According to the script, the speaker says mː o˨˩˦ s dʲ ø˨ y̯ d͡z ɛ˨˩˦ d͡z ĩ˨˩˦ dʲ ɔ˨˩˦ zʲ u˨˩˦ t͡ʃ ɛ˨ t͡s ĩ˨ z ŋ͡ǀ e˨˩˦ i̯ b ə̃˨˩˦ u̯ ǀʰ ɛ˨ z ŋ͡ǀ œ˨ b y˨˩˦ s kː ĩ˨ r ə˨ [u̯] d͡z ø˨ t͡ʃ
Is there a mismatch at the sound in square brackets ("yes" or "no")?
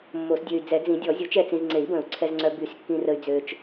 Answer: yes